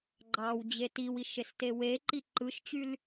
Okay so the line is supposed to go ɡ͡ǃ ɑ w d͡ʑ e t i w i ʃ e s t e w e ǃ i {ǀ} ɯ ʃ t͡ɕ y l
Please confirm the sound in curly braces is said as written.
no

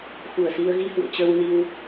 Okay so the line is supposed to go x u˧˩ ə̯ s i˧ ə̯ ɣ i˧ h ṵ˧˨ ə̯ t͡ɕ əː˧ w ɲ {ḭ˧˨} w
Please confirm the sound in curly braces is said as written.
no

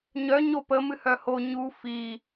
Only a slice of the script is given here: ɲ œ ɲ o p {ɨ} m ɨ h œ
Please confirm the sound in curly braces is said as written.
no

